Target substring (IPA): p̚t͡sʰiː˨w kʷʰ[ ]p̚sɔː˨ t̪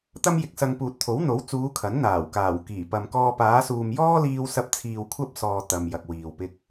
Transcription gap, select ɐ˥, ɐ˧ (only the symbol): ɐ˥